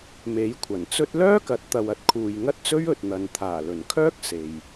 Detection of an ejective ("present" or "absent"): absent